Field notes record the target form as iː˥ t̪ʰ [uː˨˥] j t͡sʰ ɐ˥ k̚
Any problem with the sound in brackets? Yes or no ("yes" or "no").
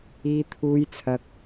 yes